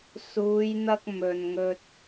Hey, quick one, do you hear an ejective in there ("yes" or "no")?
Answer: no